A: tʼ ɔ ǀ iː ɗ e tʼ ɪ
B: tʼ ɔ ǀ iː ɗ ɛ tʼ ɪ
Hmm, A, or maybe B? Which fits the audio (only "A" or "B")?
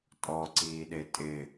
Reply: A